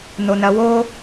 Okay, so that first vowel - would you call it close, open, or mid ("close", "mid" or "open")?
mid